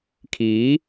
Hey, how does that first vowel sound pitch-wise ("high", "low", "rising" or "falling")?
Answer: rising